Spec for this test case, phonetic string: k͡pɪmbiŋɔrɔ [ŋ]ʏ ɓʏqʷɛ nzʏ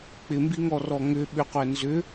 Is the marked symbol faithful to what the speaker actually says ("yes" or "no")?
yes